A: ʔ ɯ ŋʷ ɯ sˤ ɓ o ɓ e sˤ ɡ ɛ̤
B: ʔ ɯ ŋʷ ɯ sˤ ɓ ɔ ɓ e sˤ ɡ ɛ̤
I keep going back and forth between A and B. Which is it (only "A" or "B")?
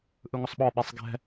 B